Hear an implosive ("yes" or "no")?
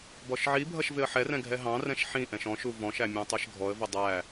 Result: no